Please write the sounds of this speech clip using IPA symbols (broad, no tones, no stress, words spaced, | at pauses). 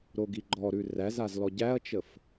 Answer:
ɾoɡiɡ͡ǃɔɾʉ ræzaz lɔɟæɐ̯t͡ʃəf